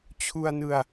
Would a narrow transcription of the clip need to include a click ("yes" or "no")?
no